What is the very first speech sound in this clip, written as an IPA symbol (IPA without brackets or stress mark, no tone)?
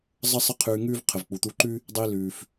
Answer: zˤ